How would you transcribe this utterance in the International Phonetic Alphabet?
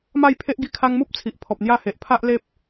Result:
m a˥˧ j pʰ e˦ ʔ ɡ i˧ kʰ a˧ ŋ m u˦ p̚ t͡sʰ i˨ ʔ pʰ ɔ˨ p̚ n̪ j a˥˧ h e˨ ʔ pʰ a˦ ʔ l e˦ p̚

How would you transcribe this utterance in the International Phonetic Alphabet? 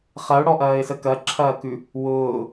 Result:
χ ɐ ʊ̯ ɽ ɔ ʔ ɐː ɪ̯ s ə k ɐ ǁʰ ɐː k ʉ | w ʊː

